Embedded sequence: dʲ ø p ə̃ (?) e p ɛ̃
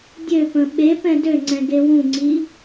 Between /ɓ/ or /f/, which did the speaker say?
ɓ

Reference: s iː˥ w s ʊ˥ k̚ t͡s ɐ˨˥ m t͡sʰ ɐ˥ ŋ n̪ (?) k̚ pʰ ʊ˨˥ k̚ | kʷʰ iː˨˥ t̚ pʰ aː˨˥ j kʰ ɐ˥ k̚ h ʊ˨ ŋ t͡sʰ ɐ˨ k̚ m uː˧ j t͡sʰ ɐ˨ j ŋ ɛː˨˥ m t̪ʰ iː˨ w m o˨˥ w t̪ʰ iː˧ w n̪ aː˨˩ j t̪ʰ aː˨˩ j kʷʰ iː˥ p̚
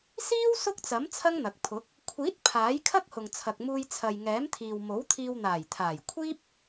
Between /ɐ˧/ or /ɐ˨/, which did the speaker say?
ɐ˨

